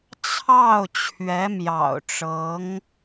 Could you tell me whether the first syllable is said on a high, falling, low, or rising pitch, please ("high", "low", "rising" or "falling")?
falling